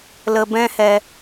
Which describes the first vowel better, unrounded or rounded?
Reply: unrounded